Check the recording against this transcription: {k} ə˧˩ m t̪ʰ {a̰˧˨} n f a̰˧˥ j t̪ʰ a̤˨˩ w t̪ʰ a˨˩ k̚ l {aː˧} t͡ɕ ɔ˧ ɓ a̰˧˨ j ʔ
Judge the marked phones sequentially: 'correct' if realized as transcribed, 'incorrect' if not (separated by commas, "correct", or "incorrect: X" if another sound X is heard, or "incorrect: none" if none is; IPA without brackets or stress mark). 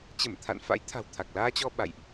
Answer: incorrect: t͡ɕ, correct, correct